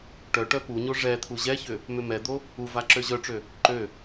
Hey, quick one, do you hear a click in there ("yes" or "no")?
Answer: yes